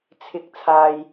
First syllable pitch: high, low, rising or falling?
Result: low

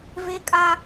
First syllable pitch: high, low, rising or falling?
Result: high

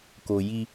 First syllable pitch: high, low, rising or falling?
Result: low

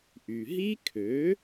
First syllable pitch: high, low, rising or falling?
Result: low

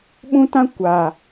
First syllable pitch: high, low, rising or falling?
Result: high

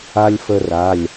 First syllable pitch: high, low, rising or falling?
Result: high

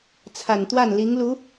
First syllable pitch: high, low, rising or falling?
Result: low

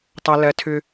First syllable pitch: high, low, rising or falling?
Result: high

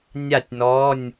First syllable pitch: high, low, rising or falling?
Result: falling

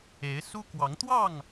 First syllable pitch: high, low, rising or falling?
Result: rising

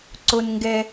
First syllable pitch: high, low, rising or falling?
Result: low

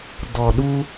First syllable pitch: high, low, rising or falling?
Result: low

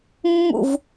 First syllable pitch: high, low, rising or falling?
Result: falling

